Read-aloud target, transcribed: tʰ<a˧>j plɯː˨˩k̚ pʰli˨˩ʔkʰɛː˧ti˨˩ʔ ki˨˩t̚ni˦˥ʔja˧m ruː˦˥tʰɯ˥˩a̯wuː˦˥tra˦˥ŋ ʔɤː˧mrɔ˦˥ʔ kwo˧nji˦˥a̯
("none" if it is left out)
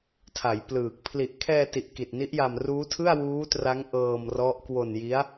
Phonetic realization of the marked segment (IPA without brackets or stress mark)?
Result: a˩˦